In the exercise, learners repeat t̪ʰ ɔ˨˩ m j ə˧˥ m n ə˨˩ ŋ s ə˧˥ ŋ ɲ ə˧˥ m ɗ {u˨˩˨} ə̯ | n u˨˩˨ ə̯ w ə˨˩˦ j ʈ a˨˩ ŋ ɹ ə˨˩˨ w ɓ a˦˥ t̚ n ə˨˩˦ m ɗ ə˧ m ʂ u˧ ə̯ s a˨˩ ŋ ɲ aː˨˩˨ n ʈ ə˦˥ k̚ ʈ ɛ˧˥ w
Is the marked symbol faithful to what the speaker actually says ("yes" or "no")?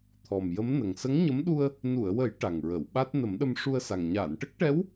no